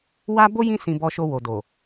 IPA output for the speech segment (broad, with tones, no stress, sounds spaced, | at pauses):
w a˦ b o˦ j ĩ˦ s ĩ˧ b ɔ˧ ʃ o˧ w o˨ d o˨